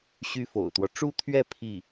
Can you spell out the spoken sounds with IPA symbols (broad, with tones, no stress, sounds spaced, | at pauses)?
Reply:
ɕ y˥ f o̰˨˩ ʊ̯ t̪ w ɔ˦ ʈ͡ʂ u˥˧ t̪ʰ ɥ ɛ˥˧ pʰ i˥˩